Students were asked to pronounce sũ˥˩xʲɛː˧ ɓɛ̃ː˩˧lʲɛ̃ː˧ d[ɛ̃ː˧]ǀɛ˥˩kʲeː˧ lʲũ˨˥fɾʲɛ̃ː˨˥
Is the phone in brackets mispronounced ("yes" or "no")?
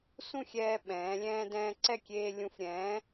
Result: no